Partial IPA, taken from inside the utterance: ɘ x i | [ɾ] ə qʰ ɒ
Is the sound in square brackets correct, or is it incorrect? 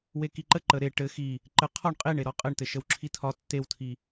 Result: incorrect